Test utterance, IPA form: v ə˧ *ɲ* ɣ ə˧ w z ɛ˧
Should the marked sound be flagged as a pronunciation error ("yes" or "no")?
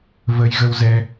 yes